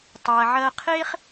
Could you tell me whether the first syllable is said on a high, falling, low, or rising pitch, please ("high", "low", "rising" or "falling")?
low